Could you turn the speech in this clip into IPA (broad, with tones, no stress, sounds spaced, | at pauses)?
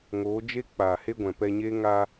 ŋ oː˨˦ d͡ʒ e˦ k͡p aː˨ h e˧ ɡʷ ɛ̃˨ p ɛ˧ ɲ eː˦ ŋ aː˧